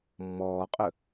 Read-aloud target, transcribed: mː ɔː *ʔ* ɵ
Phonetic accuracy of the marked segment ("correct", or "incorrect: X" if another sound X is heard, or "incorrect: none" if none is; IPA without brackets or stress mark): incorrect: qʼ